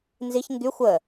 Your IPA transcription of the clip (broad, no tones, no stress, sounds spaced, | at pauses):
n z i ç ŋ ɡ y xʷ ə